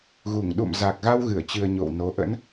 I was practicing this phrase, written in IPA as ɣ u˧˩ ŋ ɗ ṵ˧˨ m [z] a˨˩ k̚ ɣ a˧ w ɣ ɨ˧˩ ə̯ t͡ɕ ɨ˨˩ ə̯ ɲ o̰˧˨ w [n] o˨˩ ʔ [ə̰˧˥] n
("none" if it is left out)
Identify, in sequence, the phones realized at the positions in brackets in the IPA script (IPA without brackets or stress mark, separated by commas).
z, n, ə̰˧˥